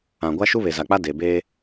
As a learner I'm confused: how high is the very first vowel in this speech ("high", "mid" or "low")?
low